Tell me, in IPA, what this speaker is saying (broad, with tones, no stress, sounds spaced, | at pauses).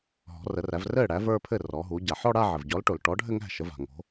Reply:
ɦ ɔ̤˩˧ r ə˩˧ r æ˩˧ v r ɘː˥˩ ɽ æ˩˥ v ə˞˥˧ pʰ ɘ˥˩ r ɔː˩˧ ɦ u˩˧ ɟ a˩ ħ ɔ˥˧ ɽ a˥˧ ʕ ɘ˩ v ɟ ɔ˩˥ l ʈ o˩ l ʈ ɔ˩˥ ɖʱ ɘ˥˧ ŋ æ̤˥˩ ʃ ə˩˧ v a̤˩ ŋ o̤˩˧